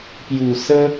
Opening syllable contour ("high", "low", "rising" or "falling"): low